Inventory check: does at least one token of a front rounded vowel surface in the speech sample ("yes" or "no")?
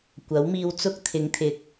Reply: no